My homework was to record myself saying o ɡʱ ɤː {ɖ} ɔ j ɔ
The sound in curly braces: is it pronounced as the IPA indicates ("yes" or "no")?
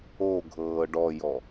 yes